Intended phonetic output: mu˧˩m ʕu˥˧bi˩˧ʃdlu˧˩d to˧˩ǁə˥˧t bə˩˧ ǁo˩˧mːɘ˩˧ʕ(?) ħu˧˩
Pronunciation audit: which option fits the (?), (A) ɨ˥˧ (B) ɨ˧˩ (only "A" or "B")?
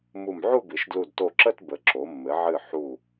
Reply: B